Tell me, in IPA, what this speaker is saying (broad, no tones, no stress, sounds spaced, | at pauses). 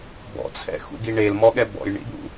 b ɔ̰ t͡sʰ ɛ̰ x ṵ ɡ i ɳ e l m ɔ ɠ ɛ b ɔ̰ j ɳ ḭ d̪ ṵ